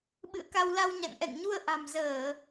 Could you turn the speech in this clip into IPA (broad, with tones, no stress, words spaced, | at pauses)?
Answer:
ɓɨ̰˧˨ə̯ka˧wla˧wɲa̰˧˨ŋ ʔɛ̰˧˨ŋɲu˧ə̯ ʔa̤˨˩mzəː˧˩˨